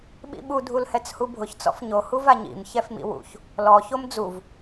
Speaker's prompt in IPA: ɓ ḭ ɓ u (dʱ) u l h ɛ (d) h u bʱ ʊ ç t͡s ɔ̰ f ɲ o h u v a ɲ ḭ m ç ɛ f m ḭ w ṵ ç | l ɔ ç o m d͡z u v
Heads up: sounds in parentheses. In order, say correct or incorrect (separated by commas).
correct, incorrect